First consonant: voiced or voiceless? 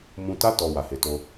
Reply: voiced